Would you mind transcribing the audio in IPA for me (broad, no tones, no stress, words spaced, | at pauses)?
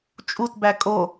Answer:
t͡ʃʼutbæ kʼo